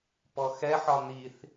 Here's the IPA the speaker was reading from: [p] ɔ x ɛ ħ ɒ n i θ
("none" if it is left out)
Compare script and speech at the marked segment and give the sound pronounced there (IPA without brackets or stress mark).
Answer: p